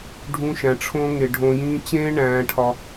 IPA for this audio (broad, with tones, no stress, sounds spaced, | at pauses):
ɖʱ ũ˧ ʃ æ̃˨ ʈ͡ʂʰ õ˧ ŋ e˨ ɖʱ õ˧ j ĩː˦ t͡ɕ ẽː˦ ɳ æ̃ː˧ ʈʰ ɒ˧